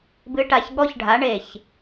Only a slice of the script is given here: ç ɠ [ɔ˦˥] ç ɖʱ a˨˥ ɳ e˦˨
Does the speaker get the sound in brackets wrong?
no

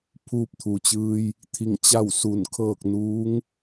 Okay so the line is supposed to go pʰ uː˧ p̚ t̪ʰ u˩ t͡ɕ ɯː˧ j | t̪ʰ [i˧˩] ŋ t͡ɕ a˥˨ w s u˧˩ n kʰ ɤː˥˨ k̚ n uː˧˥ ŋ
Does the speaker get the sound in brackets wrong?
no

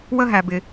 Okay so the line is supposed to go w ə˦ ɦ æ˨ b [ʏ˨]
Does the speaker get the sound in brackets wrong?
yes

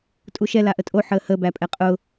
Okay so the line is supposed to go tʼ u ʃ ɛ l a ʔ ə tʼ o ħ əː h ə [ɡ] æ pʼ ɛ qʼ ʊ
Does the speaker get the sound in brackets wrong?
yes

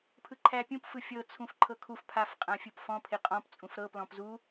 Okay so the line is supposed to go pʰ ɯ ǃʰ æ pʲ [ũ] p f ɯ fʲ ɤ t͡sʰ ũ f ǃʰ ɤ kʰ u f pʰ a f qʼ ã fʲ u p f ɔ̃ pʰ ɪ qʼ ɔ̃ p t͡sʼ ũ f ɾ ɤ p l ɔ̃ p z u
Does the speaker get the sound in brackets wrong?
no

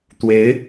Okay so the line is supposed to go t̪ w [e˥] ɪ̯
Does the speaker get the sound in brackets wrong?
yes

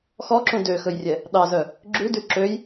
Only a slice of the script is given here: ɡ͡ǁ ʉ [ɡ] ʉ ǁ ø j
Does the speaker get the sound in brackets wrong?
yes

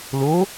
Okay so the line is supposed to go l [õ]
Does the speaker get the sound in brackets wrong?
yes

